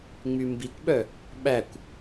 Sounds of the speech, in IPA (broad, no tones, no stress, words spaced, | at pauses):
ŋ͡mymbikʷɓœ | ɓækʷ